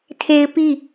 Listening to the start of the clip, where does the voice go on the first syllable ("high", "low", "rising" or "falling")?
high